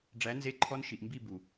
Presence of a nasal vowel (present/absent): absent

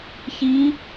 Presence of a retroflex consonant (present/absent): absent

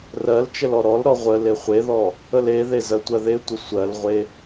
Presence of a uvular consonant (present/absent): present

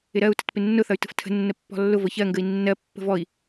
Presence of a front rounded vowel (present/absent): present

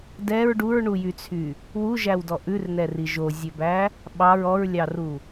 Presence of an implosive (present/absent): present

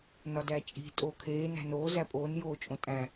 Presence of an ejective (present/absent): present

